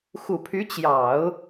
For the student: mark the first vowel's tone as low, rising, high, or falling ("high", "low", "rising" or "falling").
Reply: low